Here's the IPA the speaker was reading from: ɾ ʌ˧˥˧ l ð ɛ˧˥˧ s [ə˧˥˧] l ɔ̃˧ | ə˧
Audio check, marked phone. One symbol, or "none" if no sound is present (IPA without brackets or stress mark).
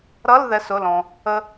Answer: ʊ˧˥˧